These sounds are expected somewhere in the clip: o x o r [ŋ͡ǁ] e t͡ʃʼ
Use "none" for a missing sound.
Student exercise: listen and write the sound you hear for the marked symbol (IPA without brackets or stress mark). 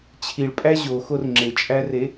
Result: ŋ͡ǁ